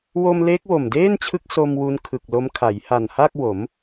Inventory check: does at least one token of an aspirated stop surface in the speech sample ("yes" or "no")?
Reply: yes